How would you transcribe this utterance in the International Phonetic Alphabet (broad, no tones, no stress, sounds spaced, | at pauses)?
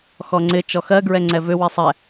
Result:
x ɔ ŋ͡ǀ ɪ t͡ʃ ɔ x ɜ ɡ ɹ ɛ ŋ͡ǀ ɛ v ʏ w i sˤ ɛ